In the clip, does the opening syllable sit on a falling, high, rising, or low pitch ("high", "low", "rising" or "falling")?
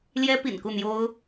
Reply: high